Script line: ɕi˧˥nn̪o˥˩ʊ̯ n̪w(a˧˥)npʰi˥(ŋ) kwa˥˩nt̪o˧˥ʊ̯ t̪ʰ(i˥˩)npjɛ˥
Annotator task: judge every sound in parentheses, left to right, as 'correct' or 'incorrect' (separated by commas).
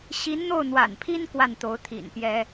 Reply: incorrect, incorrect, incorrect